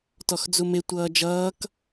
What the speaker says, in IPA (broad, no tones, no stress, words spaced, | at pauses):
tɔxd͡zumɪ tʷʌːd͡ʒʌːk